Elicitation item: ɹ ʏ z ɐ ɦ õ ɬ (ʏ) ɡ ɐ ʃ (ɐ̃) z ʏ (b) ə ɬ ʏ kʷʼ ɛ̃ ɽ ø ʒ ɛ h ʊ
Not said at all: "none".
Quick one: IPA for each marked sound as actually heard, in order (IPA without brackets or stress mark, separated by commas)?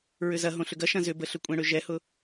ʏ, ɐ̃, b